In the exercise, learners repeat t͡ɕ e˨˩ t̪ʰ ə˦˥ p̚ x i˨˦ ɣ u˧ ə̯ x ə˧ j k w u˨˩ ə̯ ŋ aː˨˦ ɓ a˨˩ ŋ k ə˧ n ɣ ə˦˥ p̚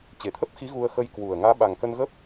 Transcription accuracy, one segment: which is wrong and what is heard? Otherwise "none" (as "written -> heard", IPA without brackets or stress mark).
none